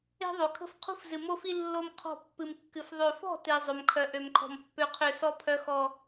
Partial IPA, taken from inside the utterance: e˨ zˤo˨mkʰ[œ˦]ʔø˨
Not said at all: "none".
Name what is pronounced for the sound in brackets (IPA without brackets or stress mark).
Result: œ˨